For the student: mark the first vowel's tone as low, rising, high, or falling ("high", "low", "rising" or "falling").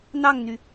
falling